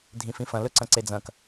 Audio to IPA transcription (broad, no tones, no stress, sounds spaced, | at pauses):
dʱ ĩ f ĩ f ɐ̃ l ɵ ǀ ɐ̃ ǀ e d͡z ɐ̃ k